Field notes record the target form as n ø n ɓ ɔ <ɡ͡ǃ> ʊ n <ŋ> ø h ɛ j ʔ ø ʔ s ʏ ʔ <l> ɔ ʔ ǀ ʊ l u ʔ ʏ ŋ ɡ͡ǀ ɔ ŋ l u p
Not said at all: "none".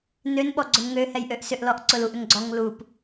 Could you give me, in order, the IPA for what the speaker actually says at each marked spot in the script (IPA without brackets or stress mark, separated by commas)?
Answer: ɡ͡ǀ, ŋ, l